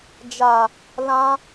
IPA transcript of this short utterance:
d͡ʒ a˨ | l ã˧

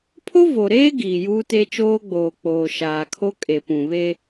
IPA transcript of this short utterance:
pʰ o˦ v o˨ ɾ eː˦ ɡ iː˨ j uː˦ t e˦ t͡ʃ oː˦ ɡ͡b oː˨ k͡p oː˨ ʃ aː˨ kʰ o˦ kʼ e˨ p ũ˨ β e˦

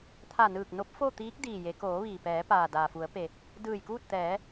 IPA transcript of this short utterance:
t̪ʰ a˧˩ n ɯː˧˩ k̚ n o˧˥ p̚ f o˥˨ t̪ iː˧˥ k̚ d iː˧˩ j e˩˧ k oː˩˧ ʋ iː˩ p ɛː˩˧ p aː˩ d aː˩ f u˩˧ ə̯ p e˩ | d ɯː˧˩ j k uː˥˨ t̚ t̪ ɛː˩˧

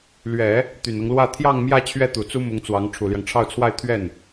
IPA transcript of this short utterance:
l ɥ ɛ˨˩˦ | t̪ y˨˩ n ɤ˦ ŋ l w ä˥˧ t̪ʰ j ɑ˥˧ ŋ m j ä˥˧ t͡ɕʰ ɥ ɛ˥˩ t̪ u˨˩ t͡s u˥ m ʊ˧˥ ŋ t͡s w ɑ˧˥ ŋ ʈ͡ʂʰ u˨˩ l j ɑ˦ ŋ ʈ͡ʂʰ ɑ˥˧ ʊ̯ t͡sʰ w a˥˧ ɪ̯ t̪ʰ ɥ ɛ˥˩ n

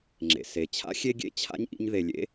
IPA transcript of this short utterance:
ŋ͡ǁ ḛ˩ s e˩ t͡ɕʰ a̰˥ xʲ e˥ ɡʲ ḛ˦ t͡ɕʰ a̰˥ ɲ ʔ ḭ˦ ɲ ð e˩ lʲ ḛ˥

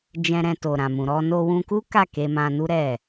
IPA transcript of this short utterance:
d͡ʒ ɛ̃˧ ɾ ɛ̃˧ t o˨ ɾ ã˨ m ũ˨ ɾ ɔ˧ n o˧ w ũ˧ k u˦ k a˦˨ k e˧ m ã˧ n u˦ ɾ ɛ˦˨

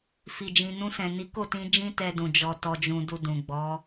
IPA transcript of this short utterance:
f i˨ d͡ʒ ĩ˨ n ũ˧ s ɛ̃˨ n i˨˦ k o˦˨ t ĩ˧ d͡ʒ ĩ˦ t ɛ˧ d ũ˨ d͡ʒ ɔ˧ t ɔ˧ d͡ʒ ũ˧ d u˧ d ũ˨ ɡ͡b ɔ˨˦

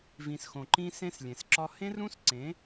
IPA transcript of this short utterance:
v ĩ˨ s x õ˨ ǃ ĩ˦ s ẽ˦ s lʲ ẽ˨ s ǁ ɒ˦ h ẽ˦ r ũ˦ s ǀ ẽ˨˦

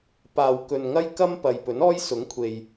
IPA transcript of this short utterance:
p aː˨ w k ɵ˨ n ŋ ɐ˥ j k ɐ˥ m p ɐ˨ j p ɵ˨˥ n ɔː˥ j s ʊ˨˥ ŋ kʷʰ e˨ j

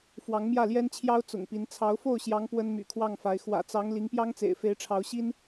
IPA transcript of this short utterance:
f w ɑ˧˥ ŋ m j ä˥˩ l j ɛ˥ n t͡ɕʰ j ɑ˥ ʊ̯ t͡s ʊ̰˨˩ ŋ p i˧˥ n t͡sʰ ɑ˧˥ ʊ̯ f o˥˩ ʊ̯ ɕ j ɑ˧˥ ŋ p w ə˥ n m y̰˨˩ kʰ w ɑ˥˩ ŋ f a˧˥ ɪ̯ x w ä̰˨˩ t͡s ɑ˧˥ ŋ l i˧˥ ŋ p j ɑ˥ ŋ t͡s ḛ˨˩ ɪ̯ f e˧˥ ɪ̯ ʈ͡ʂʰ ɑ˧˥ ʊ̯ ɕ i˥ n

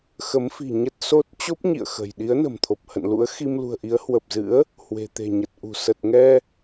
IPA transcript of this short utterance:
x ə˨˦ m f i̤˨˩ ɲ ə˦˥ t̚ s o˦˥ t̚ t͡ɕ o˦˥ p̚ ɲ ḭ˧˨ ə̯ x ə̤˨˩ j ɗ i˨˦ ə̯ n ə̤˨˩ m t̪ʰ o˨˩ p̚ h ə̰˧˨ n l ṵ˧˥ ə̯ x i˧ m l ṳ˨˩ ə̯ ʔ i˨˦ ə̯ h w ə˨˩ p̚ z ɨ̰˧˥ ə̯ | h w e̤˨˩ t̪ e̤˨˩ ɲ ə˨˩ t̚ ʔ ṳ˨˩ s ə˨˩ t̚ ŋ ɛ˧

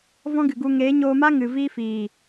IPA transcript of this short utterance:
v ɔ̃˦ ɡ ɨ˨ ɡ u˧ ŋ eː˨˦ ɲ oː˧ m a˦ ŋ ɨ˨ v iː˦ f iː˨

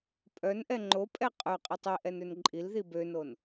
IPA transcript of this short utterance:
pʼ œ n ʔ ɛ ŋ͡ǃ o pʼ ɛ qʼ œ qʼ i tˤ i ʔ ɛ n ø n ǃʼ i l ð i b ø n o n

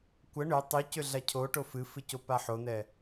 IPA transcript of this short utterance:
kʷ ə ɳ ʏ tˤ y c ʏ ɮ a cʰ o ʈ o f ɨ f ɨ c o p a ħ o n ɛ

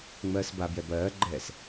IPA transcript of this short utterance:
ŋ͡m ɜː s b a b j ɛ b ɜː ɡ͡ǃ ɛː s

